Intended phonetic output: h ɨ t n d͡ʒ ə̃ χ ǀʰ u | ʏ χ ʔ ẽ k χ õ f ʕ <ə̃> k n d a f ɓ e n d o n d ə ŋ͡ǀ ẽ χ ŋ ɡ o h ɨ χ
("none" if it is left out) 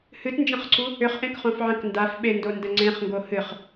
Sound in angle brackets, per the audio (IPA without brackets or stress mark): ə̃